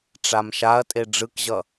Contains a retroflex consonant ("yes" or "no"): yes